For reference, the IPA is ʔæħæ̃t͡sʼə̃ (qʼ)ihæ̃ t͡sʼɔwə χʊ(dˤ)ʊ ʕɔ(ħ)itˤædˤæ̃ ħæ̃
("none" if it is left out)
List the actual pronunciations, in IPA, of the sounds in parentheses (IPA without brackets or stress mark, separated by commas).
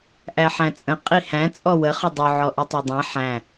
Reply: qʼ, dˤ, ʔ